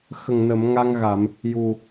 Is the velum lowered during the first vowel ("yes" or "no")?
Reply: no